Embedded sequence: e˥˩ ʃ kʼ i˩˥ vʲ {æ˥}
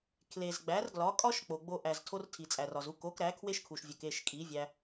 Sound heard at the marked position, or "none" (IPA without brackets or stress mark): æ˧